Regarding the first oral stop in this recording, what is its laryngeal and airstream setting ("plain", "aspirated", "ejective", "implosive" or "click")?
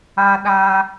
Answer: implosive